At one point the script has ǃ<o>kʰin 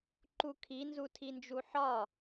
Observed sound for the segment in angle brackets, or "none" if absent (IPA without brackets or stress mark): u